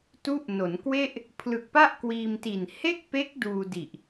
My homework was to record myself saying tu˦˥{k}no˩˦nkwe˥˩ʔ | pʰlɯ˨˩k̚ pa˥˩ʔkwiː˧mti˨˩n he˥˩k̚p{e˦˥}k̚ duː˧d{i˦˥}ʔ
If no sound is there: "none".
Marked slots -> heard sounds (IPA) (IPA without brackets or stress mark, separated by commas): ʔ, e˦˥, i˨˩